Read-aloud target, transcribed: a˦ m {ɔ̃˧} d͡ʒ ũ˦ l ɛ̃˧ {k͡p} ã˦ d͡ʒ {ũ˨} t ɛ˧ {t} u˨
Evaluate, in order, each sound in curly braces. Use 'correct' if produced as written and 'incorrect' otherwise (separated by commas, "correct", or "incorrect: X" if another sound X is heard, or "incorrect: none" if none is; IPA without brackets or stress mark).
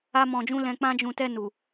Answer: correct, correct, incorrect: ũ˧, incorrect: n